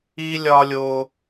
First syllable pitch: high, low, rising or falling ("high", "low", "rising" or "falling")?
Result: high